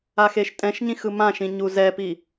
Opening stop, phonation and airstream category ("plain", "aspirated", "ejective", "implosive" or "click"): ejective